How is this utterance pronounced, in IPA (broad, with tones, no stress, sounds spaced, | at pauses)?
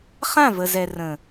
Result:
χ ã˦˨ v ə˨ z ɛ˨ r ə̃˨